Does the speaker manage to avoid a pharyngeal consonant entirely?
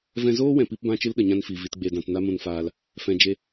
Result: yes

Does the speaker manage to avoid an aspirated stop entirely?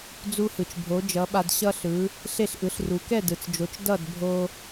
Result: yes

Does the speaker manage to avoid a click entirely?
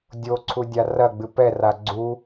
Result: no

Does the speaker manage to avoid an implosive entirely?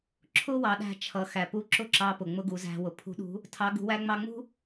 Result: no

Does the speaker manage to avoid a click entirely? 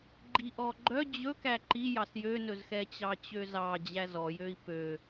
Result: no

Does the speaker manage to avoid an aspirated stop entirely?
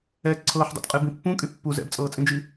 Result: no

